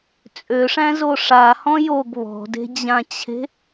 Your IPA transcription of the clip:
t͡sʼ ø ʂ æ̃ z o ʂ a h ɔ̃ j o ɡ β ɔ̤ d e̤ d͡ʑ ã t͡ɕʰ e̤

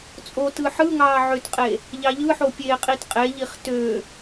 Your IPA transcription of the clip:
t͡sʼ o t ɯ ħ ɯ ŋ ɑː ʕ ø t qʼ e | ʎ ɑ ʎ ɯ ħ o pʲ eː qʼ i t qʼ e ʎ i χ t ø

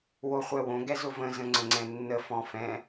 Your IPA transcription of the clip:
w o χʷ ɛ w õ ɡ ɛ z ʊ v ə̃ z ə̃ ŋ͡ǀ ə̃ ŋ͡ǀ ɛ̃ nː ə f ɔ̃ f ɛ̃

